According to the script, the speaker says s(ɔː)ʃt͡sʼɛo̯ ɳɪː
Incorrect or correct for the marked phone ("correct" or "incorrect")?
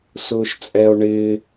incorrect